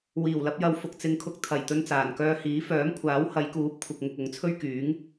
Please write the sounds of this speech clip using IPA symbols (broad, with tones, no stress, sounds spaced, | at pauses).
w iː˨˩ w l ɐ˧ p̚ j ɐ˨˧ w f ʊ˨ k̚ t͡s ɪ˧ ŋ kʰ ʊ˧ k̚ t̪ʰ ɐ˨˩ j t̪ ɵ˧ n t͡s aː˨˩ n k œː˧ h iː˨˥ f œː˨˥ m kʷʰ aː˨˥ w h ɐ˨˧ j k uː˨˥ p̚ kʷʰ ɪ˨ k̚ ŋ ʊ˨ k̚ ʊ˨˥ ŋ t͡sʰ ɵ˥ ɥ k yː˨˥ ŋ